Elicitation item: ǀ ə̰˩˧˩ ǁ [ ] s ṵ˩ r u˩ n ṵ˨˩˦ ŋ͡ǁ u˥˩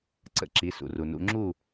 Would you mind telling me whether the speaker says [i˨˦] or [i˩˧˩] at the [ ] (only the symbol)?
i˩˧˩